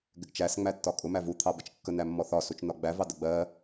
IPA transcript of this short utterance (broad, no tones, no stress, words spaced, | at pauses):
ɡɪɡt͡ʃæs ŋ͡mætːɒkʼʊ mævu t̪ʰɑbət͡ʃkːən æmːɔθɒ sut͡ʃnɒɡ͡bæ vɑdəɡ͡bɜ